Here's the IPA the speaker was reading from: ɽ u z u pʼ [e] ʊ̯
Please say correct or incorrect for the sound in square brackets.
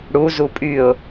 incorrect: y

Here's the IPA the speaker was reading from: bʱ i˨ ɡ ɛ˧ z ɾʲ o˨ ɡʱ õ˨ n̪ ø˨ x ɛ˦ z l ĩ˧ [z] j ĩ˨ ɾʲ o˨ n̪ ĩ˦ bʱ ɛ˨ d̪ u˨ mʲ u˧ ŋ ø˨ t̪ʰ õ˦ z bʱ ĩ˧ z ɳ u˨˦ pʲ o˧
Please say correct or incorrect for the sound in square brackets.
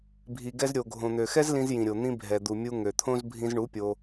correct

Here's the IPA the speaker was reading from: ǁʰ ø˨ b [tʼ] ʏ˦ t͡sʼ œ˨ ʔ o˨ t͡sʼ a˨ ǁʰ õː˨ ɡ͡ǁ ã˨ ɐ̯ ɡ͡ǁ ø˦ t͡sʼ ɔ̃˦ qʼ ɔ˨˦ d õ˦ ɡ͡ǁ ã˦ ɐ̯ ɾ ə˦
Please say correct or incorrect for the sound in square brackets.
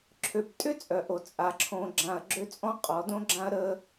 correct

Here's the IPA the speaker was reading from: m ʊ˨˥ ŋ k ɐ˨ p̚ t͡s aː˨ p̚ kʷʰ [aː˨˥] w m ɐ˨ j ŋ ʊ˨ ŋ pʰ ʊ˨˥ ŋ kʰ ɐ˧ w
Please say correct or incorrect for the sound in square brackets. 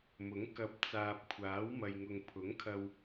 correct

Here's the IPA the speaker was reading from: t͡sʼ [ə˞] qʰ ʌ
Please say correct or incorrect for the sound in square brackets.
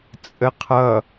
incorrect: ə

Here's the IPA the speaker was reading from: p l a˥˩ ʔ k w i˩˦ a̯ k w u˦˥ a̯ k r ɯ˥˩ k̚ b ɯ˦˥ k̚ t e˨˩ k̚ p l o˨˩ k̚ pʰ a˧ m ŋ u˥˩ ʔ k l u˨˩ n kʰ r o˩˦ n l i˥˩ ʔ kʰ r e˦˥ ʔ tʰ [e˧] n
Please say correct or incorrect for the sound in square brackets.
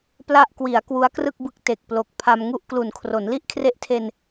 correct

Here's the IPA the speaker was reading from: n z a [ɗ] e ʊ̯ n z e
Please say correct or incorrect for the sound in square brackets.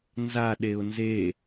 correct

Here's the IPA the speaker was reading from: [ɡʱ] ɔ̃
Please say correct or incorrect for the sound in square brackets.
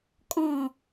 incorrect: kʼ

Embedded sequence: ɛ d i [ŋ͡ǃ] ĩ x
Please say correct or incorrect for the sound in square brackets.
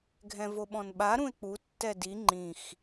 correct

